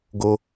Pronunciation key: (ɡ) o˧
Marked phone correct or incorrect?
correct